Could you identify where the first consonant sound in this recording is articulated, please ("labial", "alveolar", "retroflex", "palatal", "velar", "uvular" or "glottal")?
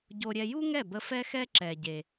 palatal